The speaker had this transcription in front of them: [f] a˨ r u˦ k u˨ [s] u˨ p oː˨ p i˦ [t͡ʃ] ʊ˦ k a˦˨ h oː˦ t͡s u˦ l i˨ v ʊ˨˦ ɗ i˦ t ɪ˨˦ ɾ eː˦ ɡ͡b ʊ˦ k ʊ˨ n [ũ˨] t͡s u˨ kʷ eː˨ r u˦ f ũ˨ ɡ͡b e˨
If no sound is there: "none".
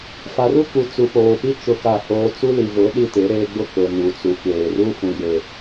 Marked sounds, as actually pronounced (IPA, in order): f, t͡s, t͡ʃ, u˨

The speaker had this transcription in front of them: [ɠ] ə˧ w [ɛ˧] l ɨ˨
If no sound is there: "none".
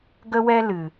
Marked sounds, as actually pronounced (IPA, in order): ɡ, ɛ˧

